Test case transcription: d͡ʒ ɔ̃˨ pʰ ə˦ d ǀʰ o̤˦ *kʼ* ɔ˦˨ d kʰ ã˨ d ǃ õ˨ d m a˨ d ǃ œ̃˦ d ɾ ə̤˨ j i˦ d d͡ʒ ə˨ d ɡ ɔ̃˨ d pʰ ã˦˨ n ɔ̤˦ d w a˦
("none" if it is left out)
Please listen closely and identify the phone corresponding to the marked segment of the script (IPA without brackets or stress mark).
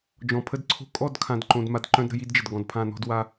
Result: kʼ